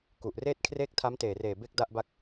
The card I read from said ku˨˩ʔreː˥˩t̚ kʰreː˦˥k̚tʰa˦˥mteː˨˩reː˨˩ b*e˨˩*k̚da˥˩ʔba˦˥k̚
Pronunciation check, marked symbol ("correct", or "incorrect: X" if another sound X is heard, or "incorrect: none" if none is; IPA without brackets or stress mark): incorrect: e˥˩